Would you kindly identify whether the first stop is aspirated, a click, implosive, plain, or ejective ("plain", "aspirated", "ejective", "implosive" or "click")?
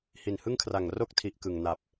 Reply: aspirated